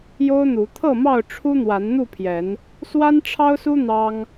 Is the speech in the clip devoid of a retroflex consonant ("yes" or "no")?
no